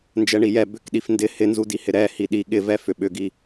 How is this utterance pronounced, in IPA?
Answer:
nd͡ʒɛɳijɛ bʏk ɗifndɪ hɪnzudihɪ ɾɛ hiɗi ɠɪvɛ fʏɓʏɡi

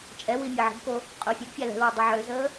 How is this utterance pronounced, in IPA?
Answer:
t͡ʃʼɛwi mʲɛʕə̤bko | qʼʊːfʲɛɡfʲa lɛ̤lwʊ dˤiʕøzəː

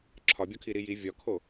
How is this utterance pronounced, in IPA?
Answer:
ǁʰɒbʲɒkʰi ɾiji vʲɒkʰo

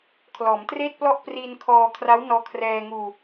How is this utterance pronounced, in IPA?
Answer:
kʰlɔː˩˦mtreː˥˩t̚plɔ˥˩ʔ priː˧nkʰɔː˧kʰra˦˥w nɔː˧kʰrɛː˧ŋuː˧

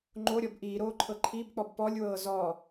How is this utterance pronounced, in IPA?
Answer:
ŋ͡ǃoɾʲɔb ʔiːɾoːǃʰɤ ǃʰibk͡pɔb pɔlʲwɤː zɔ

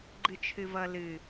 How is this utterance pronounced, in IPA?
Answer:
ɡ͡ǃɨt͡ʃʰɨvʌ lɨ

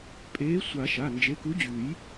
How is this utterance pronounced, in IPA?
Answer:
pʼeː˨˥sʷa˨˩˦ ʃa˩˧˩nd͡ʒe˨˥ku˨˥d͡ʑʉː˨˩˦j

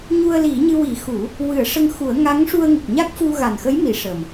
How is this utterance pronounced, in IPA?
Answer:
ɲu˧ə̯li˨˩˦ɲɨ˧ wi˨˩˦xu˨˩˦ | wɨ˨˩˦ə̯ʂə˧ŋxu˨˩˦ə̯ ŋa˧˥ŋʂu˧ə̯ŋu˨˩k̚ ɲa˦˥k̚fu˧ ɣa˨˩nxə˧˥j mi˨˩˦ʂə˨˩m

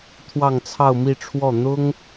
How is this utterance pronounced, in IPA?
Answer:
t̪ʰwɑ˥˧ŋt͡sʰɑ˥˧ʊ̯mi˥˧ʈ͡ʂʰwɔ˥˩ n̪ʊ˥ŋ

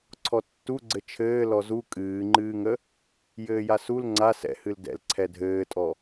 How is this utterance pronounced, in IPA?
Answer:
ǀʰɔtːuɡ͡ǀɘ t͡ʃʰɘː lɔzu kʼɨːŋ͡ǃɨːŋə | jɘːjasul ŋ͡ǀa sɛ̰hɨl dɛ̰l ǀʰɛdʱɘːtʼɔ

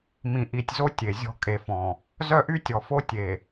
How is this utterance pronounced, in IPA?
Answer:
mĩ˨ʔi˨tʲzo˦ tʲe˨zʲɔ̤˦ kʼe˨fɔ̃˨ | zœ˦ʔy˦tʲɔ˨fo˦ tʲe˨

